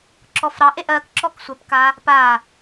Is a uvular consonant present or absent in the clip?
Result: absent